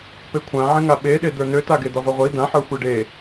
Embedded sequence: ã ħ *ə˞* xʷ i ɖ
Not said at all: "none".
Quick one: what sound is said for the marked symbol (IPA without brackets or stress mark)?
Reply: ə˞